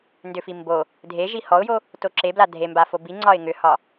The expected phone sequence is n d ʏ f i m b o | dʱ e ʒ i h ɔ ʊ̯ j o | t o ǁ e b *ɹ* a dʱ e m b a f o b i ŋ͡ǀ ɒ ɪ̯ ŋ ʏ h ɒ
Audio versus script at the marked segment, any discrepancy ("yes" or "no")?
yes